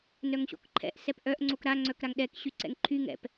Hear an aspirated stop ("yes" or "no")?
yes